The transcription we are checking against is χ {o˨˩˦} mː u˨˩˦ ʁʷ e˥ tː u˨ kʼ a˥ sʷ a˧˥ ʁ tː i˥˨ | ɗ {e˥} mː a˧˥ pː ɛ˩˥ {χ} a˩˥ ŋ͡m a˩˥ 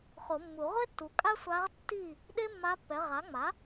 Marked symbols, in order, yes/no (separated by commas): yes, yes, no